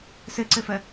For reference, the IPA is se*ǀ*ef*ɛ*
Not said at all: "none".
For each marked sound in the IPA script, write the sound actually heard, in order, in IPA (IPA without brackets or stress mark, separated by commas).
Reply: ǀ, ɛ